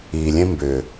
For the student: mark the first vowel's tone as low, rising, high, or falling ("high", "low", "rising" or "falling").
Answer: low